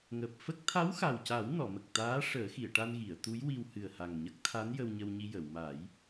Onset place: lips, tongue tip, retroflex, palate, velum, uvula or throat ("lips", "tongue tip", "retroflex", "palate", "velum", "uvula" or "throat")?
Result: velum